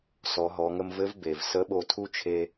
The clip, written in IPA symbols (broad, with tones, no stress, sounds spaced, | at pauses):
s ɔ˩˧ ɦ ɔ˩˧ ŋ ə˧ m v ɘ˧˥ v b e˩ v s ə˧˥ ɓ o˧ tʰ u˥ t͡ʃʰ e˧